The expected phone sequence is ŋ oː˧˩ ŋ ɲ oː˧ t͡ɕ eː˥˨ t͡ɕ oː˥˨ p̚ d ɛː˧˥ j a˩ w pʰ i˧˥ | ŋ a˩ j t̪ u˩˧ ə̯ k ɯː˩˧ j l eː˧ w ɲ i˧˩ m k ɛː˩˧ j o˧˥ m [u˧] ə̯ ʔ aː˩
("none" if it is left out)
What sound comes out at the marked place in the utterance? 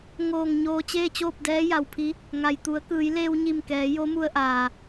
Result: u˧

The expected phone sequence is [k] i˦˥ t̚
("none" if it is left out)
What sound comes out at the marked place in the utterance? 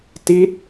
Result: t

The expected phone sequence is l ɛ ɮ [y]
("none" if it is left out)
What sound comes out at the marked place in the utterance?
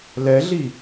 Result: i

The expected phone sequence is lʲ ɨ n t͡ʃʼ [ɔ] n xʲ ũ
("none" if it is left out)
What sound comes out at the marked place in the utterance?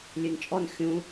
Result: ɔ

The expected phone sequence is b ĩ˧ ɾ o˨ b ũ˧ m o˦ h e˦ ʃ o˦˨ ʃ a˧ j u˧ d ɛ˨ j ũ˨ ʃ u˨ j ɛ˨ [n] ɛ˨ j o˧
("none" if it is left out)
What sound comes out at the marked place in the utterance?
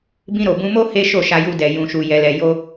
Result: l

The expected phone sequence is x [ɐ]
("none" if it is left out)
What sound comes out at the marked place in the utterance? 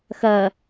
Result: ɐ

